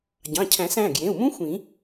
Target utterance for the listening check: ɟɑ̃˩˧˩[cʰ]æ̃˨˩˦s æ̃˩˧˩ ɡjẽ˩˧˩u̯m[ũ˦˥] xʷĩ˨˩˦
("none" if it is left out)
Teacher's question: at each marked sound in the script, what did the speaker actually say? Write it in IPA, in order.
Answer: cʰ, ũ˦˥

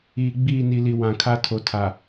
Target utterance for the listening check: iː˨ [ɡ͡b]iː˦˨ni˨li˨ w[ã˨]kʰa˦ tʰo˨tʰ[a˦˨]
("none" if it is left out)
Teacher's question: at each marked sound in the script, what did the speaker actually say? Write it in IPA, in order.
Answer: ɡ͡b, ã˨, a˨

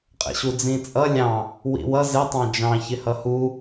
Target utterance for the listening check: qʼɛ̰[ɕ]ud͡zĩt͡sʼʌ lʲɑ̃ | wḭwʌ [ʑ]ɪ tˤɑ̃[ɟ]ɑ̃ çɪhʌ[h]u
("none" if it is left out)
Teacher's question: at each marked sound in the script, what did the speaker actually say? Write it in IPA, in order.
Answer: ɕ, z, d͡ʒ, h

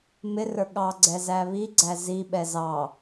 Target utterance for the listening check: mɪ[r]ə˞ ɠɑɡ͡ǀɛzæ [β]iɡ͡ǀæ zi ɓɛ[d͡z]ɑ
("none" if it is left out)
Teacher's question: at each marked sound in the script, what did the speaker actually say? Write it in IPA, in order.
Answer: r, β, z

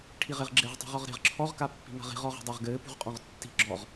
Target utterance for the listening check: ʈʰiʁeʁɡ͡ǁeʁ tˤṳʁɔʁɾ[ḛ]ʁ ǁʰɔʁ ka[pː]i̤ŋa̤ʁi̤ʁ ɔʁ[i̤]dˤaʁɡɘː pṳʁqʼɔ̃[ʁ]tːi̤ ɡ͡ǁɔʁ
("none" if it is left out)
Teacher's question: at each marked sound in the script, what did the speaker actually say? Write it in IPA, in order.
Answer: e̤, pː, e̤, ʁ

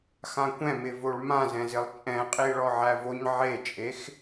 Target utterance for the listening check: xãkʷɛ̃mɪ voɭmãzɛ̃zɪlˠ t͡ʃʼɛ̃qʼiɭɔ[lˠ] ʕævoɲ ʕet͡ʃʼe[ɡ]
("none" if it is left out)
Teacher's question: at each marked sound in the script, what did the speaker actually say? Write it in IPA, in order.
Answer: none, x

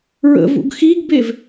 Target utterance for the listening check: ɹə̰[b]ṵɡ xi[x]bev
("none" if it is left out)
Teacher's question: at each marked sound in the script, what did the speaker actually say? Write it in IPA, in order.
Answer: v, ɡ

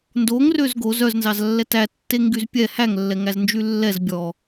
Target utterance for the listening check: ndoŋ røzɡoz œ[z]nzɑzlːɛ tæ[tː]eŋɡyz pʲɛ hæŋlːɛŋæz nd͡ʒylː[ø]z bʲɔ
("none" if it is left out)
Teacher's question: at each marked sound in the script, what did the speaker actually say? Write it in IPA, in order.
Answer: z, tː, ɛ

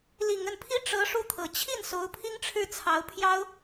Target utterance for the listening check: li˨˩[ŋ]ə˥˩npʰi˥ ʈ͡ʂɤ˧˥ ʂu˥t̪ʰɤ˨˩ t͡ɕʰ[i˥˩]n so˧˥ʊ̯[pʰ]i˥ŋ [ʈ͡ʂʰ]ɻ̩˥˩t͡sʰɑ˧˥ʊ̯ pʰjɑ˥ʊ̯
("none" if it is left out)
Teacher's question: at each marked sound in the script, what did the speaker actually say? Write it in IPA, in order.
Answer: ŋ, i˥˩, pʰ, ʈ͡ʂʰ

